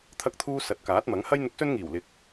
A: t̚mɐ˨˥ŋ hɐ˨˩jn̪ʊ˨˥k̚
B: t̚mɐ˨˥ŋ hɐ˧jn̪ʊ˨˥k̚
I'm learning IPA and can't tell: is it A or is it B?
B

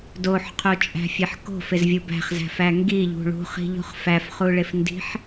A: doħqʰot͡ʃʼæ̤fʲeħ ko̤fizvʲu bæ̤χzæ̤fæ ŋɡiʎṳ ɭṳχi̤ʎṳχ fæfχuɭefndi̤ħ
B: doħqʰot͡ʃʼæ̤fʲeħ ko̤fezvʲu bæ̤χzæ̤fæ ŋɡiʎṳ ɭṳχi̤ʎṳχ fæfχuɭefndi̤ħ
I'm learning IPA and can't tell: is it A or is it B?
B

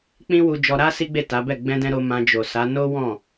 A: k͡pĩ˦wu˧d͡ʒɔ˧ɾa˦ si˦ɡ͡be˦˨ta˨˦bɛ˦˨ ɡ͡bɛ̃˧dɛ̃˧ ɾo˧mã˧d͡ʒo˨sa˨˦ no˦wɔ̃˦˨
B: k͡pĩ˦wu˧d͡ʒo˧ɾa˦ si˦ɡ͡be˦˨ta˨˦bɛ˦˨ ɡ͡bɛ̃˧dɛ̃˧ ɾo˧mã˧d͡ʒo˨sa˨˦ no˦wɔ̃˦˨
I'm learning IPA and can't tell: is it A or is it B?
A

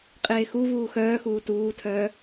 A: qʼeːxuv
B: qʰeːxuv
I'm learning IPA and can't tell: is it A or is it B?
A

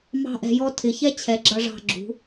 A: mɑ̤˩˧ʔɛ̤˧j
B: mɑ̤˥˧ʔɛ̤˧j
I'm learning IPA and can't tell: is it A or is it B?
B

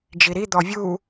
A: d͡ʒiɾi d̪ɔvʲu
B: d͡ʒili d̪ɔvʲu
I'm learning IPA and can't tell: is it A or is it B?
A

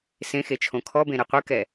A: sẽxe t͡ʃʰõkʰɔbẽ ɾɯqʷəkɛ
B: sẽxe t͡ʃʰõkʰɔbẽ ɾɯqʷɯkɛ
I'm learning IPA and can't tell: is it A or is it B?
B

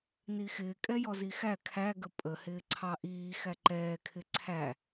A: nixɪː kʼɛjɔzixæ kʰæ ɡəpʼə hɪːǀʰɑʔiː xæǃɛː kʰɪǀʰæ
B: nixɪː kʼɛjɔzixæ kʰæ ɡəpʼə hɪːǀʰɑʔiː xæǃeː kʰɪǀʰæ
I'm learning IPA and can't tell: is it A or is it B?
A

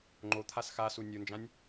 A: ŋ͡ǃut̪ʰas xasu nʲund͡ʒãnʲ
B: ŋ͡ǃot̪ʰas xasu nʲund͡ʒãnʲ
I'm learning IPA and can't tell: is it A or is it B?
B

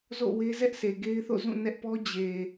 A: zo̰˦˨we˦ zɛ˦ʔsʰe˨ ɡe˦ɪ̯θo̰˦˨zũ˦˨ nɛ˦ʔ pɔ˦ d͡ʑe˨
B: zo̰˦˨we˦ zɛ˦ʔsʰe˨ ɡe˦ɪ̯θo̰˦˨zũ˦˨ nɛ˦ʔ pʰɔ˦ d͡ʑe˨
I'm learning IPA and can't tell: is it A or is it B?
A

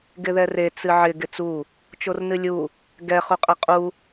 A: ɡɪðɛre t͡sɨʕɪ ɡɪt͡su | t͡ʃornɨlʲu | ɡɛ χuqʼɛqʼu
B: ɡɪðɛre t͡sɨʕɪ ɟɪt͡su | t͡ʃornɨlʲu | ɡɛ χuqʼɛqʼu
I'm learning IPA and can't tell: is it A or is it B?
A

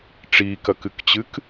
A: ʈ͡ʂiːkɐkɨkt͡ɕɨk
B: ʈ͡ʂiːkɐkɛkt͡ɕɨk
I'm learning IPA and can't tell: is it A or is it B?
A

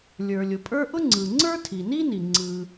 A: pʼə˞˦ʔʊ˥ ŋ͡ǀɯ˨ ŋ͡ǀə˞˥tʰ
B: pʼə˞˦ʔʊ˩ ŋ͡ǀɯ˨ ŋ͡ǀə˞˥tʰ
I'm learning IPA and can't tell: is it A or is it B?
A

